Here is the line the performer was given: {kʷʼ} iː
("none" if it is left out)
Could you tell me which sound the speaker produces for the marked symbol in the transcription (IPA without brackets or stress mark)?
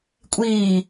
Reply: kʷʼ